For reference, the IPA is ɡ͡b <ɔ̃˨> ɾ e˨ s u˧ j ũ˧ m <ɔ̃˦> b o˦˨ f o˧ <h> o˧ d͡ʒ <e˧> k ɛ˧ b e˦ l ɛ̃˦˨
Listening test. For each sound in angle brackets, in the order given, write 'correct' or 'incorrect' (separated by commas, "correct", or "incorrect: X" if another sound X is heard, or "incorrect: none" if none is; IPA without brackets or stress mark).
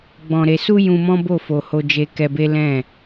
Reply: correct, correct, correct, correct